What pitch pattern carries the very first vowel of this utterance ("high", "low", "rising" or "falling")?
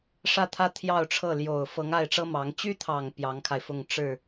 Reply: falling